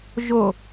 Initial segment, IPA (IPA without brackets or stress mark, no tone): ʒ